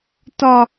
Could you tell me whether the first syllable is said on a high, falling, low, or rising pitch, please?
high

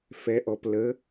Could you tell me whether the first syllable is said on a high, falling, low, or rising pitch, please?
rising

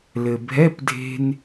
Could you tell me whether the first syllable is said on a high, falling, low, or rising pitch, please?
low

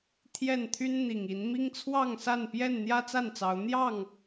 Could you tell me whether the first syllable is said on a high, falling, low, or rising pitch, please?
falling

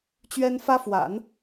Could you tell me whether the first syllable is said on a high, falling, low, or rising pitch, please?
high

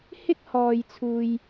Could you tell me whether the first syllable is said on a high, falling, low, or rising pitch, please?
high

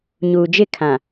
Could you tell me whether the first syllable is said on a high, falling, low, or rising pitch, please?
low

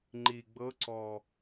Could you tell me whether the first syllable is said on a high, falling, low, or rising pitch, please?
low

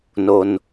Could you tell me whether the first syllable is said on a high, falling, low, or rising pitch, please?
low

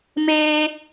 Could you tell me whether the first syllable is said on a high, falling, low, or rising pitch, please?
high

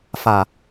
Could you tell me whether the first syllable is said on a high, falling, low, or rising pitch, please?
low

